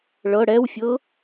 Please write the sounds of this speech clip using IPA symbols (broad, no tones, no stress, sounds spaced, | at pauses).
ɭ ɤ ɽ ɛ w fʲ ɤ